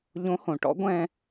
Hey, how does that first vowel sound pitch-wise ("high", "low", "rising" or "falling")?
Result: rising